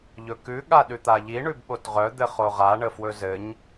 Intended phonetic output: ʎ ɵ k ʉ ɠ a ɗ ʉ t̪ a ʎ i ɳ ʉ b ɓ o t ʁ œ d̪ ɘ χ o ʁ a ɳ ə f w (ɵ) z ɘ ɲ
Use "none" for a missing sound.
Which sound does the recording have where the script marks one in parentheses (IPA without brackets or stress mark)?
ɵ